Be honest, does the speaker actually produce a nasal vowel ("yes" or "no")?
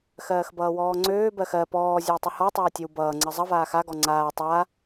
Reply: no